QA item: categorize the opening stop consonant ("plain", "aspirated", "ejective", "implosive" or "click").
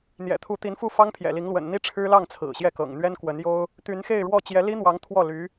aspirated